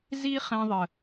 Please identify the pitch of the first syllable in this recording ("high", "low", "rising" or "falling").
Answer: high